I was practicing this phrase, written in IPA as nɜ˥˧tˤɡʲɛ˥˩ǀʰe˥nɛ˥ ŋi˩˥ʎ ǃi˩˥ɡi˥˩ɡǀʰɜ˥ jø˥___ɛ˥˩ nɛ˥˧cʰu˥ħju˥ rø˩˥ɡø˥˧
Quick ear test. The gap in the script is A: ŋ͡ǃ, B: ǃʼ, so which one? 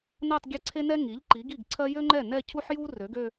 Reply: A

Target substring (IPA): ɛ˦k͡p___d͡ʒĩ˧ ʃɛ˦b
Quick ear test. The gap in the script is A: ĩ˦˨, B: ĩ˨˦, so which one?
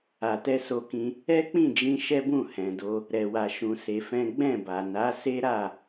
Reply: A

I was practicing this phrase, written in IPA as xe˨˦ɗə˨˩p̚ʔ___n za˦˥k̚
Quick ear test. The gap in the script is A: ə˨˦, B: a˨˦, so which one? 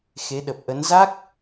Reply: A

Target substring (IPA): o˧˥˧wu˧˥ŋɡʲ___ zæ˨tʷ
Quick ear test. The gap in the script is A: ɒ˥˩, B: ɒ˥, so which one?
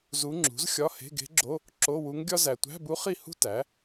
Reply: B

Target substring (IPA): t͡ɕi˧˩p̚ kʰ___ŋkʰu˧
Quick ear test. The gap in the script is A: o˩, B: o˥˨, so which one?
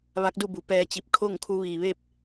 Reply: B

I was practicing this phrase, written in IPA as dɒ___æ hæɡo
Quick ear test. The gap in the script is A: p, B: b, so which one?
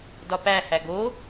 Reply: A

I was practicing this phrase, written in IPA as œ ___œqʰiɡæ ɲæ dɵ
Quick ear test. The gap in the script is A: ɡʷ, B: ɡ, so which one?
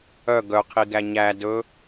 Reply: B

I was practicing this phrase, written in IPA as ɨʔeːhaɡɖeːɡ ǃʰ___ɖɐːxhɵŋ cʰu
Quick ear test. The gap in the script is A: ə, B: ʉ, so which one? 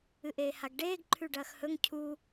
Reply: B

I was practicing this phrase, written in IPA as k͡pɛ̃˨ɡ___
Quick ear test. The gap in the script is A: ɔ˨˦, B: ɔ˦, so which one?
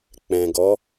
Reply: A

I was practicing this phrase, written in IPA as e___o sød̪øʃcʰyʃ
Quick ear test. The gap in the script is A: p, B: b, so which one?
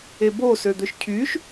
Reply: B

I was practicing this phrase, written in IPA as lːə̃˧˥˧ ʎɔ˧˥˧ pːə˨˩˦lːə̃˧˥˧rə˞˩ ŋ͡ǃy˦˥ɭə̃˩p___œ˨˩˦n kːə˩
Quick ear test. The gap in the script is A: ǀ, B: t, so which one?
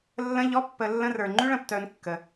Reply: B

